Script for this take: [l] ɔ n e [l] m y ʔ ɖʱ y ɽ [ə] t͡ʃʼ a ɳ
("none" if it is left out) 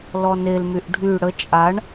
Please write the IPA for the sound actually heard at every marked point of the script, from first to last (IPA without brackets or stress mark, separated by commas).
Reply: l, l, ə